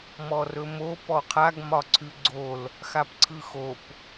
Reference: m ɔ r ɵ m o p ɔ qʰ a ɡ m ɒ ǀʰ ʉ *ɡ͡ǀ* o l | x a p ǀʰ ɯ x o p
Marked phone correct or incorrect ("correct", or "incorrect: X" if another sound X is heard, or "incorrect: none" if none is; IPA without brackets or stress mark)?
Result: correct